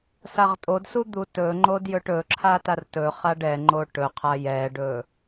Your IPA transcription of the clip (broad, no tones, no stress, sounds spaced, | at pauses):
s a ʁ tʼ o d s u d̪ u t ɵ ŋ͡ǃ o d j ɵ ʈ ɵ ǁʰ a t a r t ɵ χ a ɖ ɛ ŋ͡ǃ o ʈ ɵ qʰ a j ɛ ɖ ɵ